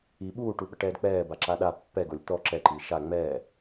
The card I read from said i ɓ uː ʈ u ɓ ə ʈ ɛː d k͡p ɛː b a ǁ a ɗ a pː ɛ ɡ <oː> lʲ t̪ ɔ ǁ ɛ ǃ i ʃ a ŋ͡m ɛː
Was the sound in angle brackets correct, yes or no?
no